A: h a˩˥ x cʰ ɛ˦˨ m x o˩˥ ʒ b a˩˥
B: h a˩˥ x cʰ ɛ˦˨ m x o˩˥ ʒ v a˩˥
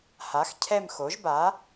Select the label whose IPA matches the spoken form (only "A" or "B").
A